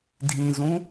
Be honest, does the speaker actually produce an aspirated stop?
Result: no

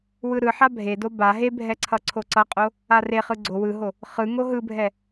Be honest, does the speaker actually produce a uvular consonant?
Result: yes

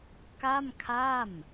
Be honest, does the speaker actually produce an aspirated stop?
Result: yes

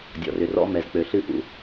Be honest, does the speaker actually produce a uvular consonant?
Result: no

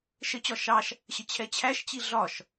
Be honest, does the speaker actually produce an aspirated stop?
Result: yes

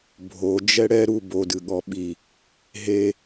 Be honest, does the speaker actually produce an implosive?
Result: yes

